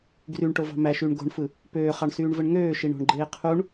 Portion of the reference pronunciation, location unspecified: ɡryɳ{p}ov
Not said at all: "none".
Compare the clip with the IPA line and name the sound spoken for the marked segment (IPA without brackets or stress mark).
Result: ʈ